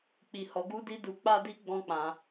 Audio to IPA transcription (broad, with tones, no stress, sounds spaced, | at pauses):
k͡p i˧ h ɔ˧ ɡ u˦ d i˦ d u˧ k͡p a˦ d i˦ ɡ͡b ɔ̃˦ k͡p ã˧